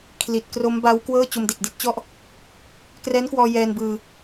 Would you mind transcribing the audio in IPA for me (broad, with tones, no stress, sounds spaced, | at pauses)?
kʰ l i˨˩ t̚ k r o˦˥ m b a˦˥ w k w ɤː˥˩ t͡ɕ o˧ m d e˨˩ k̚ d i˦˥ t̚ t͡ɕ ɔ˥˩ ʔ | k r ɛː˦˥ n k w ɔː˧ j ɛː˧ n b ɯː˧